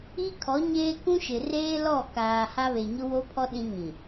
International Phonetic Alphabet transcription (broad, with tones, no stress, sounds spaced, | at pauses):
i˦ kʰ ɔ˨˦ ɲ eː˦ k ũ˦ ʃ ɪ˨ r eː˦ l ɔ˦˨ k aː˨ h a˦ β e˨ ɲ ʊ˦ w o˦ pʰ ɔ˦ ɗ ĩ˦ ŋ ĩ˨